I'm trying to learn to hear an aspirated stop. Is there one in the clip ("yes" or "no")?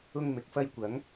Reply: no